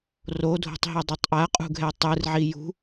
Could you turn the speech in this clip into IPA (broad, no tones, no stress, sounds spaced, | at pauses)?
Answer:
r o dʱ o̤ tˤ ɦ e dˤ o tˤ ʔ a qʼ ṳ ɡʱ ɛ tˤ ɯ r ʕ i j ṳ